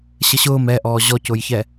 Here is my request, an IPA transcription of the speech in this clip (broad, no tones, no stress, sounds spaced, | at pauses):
ɕ ə ɕ ʊː m ɛ ʔ ɔː ʑ ɔ c ʊː j ç ɛ